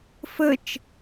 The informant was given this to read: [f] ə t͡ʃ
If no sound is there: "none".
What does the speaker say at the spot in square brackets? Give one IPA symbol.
f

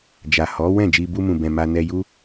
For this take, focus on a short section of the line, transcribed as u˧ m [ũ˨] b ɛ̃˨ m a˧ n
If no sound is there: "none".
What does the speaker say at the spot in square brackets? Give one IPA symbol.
ũ˨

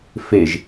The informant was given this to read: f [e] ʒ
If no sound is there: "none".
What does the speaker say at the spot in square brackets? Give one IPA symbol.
e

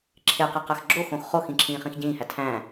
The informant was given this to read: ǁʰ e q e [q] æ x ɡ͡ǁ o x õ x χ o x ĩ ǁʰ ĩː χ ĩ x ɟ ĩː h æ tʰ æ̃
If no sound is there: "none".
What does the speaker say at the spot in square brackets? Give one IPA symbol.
q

